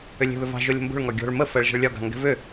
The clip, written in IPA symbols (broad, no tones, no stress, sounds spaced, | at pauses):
ʏ lʲ e̤ β ʏ v ɑ̤ ʒ o lʲ ə̤ m b o̤ ɭ ŋ ɒ ɡʲ o̤ ɭ m ə f ɜ ɭ ʒ ə̤ ɭ lʲ ɒ ɡ ɑ̤ ŋ ɡ ɛ̤ v ʏ